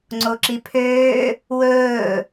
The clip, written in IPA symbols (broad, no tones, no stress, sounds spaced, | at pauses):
ŋ͡ǀ o ǁ i pʰ øː | w ɵː